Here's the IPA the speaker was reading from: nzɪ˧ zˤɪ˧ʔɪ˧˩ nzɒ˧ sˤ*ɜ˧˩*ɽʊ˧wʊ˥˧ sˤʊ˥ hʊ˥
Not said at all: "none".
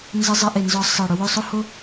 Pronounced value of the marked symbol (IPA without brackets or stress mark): ɜ˧˩